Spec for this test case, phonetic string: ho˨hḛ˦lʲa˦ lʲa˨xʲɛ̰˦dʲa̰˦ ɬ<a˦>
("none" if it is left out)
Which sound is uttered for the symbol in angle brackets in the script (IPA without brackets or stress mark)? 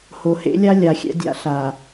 a˨